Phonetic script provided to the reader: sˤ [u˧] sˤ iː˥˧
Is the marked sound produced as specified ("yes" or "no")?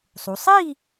no